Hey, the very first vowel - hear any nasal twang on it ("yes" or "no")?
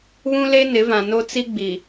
yes